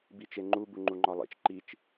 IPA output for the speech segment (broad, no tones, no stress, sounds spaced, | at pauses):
b i t͡ʃ e ŋ͡ǃ u b u ŋ͡ǃ u ŋ͡ǃ ɒ lˠ ḛ t͡ʃ ǃ i t͡ʃ